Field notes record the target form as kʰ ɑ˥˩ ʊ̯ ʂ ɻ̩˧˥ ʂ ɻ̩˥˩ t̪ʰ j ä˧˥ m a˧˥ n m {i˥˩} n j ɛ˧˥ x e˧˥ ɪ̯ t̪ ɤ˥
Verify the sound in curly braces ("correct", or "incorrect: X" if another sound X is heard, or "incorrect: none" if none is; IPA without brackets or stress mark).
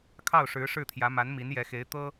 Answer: incorrect: i˧˥